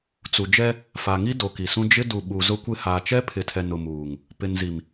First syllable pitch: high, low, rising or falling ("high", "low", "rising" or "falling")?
low